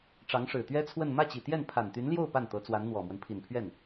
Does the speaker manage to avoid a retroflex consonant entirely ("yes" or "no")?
no